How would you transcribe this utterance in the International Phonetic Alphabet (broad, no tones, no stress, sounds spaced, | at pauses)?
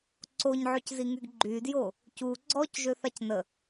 ǀ o ɲ ʕ ø c z i ŋ y ɡ ɡ͡ǃ y d j o | c u ɡ͡ǀ ɔ c ʒ ø θ a c n ə